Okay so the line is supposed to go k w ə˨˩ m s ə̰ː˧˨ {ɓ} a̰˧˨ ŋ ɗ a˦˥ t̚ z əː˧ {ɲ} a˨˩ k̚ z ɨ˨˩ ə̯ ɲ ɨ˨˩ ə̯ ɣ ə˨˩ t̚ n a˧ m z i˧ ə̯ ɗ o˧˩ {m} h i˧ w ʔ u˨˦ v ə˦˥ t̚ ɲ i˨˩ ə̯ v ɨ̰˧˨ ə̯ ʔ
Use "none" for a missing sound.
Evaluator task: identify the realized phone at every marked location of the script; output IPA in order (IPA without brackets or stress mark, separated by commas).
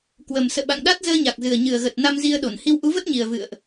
ɓ, ɲ, n